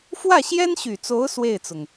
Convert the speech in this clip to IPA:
f w ä˥˩ ɕ j ɛ˥ n ɕ y˨˩ t͡s o˧˥ ʊ̯ s w e˥˩ ɪ̯ t͡s ʊ˩ ŋ

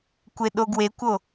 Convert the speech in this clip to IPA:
kʷ e ɗ o ɡ w e kʷ o

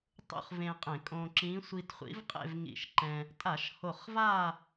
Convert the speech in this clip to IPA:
tˤ ṵ˥˧ χ v ẽ˧ qʼ ẽ˧˩˧ kʼ õː˧ ǁ ĩː˧˥ sʷ i˧ t χʷ ḭ˧˥ v qʼ ḛ˥˧ v ŋ ḭ˧˩ ʃ ǃ ɛ̃˧ | tʼ a˧˩˧ ʃ h o˧˩ χ v a˥˧

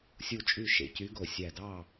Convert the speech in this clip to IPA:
sʲ u˥˨ t͡ʃʼ y˥˨ ʃ ḛ˧˩ c y˧˥ ɡ o˧˩ sʲ æ˧˩ d ɑ˥˨

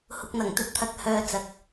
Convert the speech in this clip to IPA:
h ʊ˨ k̚ n̪ ɐ˨˩ ŋ t̪ ɵ˨ t̚ t̪ʰ ɐ˨ k̚ h œː˨ t͡s ɐ˨ k̚

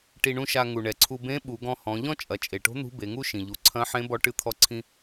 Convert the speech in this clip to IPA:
ʈ i˧ ɳ ũ˥ ʃ a˧ ŋ u˩ ɳ ɛ˩ ǀʰ u˧ b ẽ˧˥ ɓ u˩˧ ɡ ɔ̃˧ h ɔ̃˩˧ ʎ ɔ̃˥ t͡ʃʼ ɐ˩˧ t͡ʃʼ e˩ ʈ o̤˧˥ n̪ ṳ˧˥ b e˩˧ ŋ u˥ ʃ ĩ˩ ʎ u˩˧ ǀʰ ɐ̃˧˥ ħ ẽ˧˥ b ɔ˧˥ ʈ ɨ˧ t̪ʰ ɔ˧ ǀʰ ĩ˧

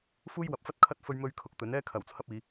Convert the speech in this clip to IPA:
f uː˥ j w ɐ˨˥ p̚ f ɐ˥ t̚ kʰ ɐ˥ t̚ f ɵ˥ ɥ m ɵ˥ ɥ kʰ ʊ˧ k̚ t̪ ɵ˨˥ n ɛː˥ kʰ ɐ˨˩ w t͡sʰ ɐ˧ p̚ iː˨˧

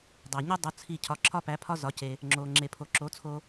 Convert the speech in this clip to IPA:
dˤ æ˩ ɲ u˥ dˤ u˩˥ t͡sʰ i˥˩ cʰ ɒ˩˥ ǁʰ ɒ˥ p æ˩˥ pʰ ɒ˥ z ɒ˩˥ c e˩ | ŋ͡ǁ o˩ ŋ͡ǁ e˩ pʰ o˩ ǁ o˩˥ t͡sʰ o˧

